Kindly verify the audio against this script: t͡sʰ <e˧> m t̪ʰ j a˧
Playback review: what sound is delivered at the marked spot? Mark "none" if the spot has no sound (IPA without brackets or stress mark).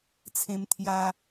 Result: ẽ˧